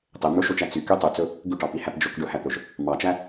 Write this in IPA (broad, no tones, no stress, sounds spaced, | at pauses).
tˤ e m ɵ ʃ o t͡ʃ æ t͡s y k y tˤ ʉ t͡s ɵ | ɡ ʉ ʈ ɑ p i h æ p d͡ʒ ɵ k ɖ ɵ h æ t̪ ɵ ʒ | m ɑ t͡ʃ æ